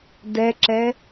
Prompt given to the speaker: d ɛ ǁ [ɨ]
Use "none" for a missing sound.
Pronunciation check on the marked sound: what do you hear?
ɛ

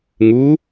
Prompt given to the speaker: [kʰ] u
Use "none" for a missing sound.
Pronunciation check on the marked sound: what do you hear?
ŋ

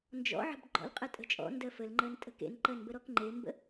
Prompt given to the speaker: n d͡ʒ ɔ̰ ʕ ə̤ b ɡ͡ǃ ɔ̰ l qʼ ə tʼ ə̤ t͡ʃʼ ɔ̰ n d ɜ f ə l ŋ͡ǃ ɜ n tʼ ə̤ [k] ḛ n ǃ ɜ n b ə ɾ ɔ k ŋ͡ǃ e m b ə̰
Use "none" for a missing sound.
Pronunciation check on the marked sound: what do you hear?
k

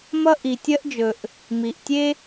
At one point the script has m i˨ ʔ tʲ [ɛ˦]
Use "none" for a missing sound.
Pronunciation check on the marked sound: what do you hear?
e˦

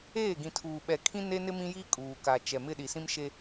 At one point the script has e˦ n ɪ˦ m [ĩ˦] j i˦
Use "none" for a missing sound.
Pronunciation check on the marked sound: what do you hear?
ĩ˦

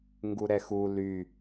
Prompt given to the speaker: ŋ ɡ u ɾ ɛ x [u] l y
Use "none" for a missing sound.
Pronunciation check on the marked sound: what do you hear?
u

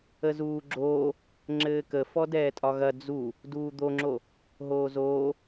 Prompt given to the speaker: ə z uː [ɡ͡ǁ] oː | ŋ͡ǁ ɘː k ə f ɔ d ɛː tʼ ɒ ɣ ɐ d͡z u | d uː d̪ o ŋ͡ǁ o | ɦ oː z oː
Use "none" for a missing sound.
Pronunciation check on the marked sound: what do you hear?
ɡ͡ǁ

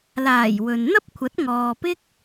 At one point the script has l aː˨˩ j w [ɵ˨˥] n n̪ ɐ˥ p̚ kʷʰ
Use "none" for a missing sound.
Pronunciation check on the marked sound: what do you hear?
ɵ˨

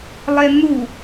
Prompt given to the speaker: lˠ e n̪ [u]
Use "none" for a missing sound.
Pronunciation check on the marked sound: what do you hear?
u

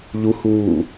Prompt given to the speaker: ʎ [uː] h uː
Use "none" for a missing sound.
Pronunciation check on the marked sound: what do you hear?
u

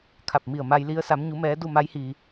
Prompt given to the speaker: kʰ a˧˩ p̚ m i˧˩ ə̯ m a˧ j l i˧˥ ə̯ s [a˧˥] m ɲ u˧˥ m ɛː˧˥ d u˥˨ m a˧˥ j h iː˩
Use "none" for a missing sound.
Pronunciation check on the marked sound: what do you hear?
a˧˥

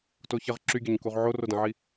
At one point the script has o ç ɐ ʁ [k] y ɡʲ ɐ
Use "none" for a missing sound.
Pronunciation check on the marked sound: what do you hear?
ǁ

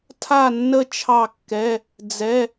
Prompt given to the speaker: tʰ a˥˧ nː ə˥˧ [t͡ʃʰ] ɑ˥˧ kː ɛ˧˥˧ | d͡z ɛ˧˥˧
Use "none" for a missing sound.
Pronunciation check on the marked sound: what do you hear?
t͡ʃʰ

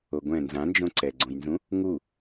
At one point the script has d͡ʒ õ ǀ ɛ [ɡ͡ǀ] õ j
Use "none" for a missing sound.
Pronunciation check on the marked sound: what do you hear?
ɡ͡ǀ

